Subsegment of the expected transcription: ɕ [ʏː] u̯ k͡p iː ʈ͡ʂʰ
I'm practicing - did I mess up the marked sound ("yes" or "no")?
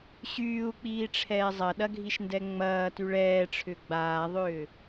yes